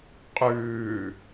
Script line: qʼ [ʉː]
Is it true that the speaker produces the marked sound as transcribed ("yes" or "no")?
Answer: yes